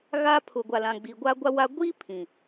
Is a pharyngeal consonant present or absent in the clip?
absent